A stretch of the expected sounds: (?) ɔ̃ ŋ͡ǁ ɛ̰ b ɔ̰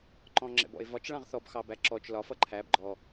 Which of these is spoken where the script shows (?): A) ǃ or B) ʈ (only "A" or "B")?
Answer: A